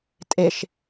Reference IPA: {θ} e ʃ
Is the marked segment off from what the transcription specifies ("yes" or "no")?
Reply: yes